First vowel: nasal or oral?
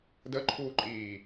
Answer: oral